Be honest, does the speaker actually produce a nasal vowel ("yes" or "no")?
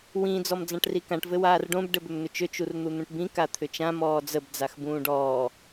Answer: yes